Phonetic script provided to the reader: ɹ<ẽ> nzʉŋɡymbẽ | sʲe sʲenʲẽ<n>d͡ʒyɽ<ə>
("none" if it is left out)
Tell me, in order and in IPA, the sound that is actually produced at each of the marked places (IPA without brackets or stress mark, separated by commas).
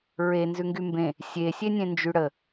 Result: e, n, ə